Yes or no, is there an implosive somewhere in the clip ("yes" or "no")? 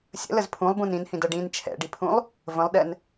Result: yes